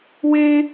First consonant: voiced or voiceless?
voiced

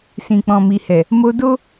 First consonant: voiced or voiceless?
voiceless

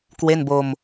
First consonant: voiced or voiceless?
voiceless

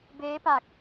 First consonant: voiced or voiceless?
voiced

